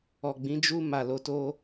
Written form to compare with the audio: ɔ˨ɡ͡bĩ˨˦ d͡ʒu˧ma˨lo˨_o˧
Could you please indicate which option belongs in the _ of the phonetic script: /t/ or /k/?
t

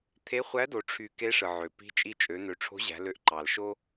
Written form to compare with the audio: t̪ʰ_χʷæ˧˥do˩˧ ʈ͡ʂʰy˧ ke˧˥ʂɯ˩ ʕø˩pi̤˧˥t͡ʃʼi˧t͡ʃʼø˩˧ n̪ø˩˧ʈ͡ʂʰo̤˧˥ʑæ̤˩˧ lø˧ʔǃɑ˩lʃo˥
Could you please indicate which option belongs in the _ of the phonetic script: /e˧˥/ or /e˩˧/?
e˧˥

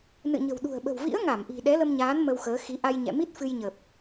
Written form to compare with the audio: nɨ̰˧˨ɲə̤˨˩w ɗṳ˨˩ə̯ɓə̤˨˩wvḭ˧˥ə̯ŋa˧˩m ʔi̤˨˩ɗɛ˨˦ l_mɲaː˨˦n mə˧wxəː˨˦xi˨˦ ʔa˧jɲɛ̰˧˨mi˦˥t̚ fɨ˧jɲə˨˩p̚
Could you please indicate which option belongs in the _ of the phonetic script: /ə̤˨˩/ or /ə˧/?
ə˧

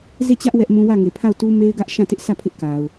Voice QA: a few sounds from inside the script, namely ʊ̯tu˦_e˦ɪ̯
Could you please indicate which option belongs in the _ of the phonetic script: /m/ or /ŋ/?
m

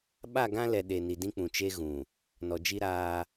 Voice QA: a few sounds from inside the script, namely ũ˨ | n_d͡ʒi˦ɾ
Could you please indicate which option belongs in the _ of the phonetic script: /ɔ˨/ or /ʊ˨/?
ɔ˨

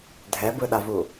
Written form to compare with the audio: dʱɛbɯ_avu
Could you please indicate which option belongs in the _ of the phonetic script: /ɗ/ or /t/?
ɗ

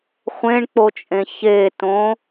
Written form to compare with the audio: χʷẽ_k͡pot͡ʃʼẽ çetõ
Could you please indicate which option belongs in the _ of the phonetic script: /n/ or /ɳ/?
ɳ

